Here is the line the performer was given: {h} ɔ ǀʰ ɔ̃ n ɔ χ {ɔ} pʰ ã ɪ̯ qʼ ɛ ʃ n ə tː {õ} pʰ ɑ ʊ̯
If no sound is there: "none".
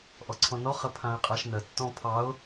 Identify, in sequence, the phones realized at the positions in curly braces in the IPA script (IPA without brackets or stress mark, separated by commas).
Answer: ʔ, ə, ɔ̃